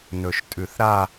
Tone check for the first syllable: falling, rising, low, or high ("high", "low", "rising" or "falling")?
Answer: low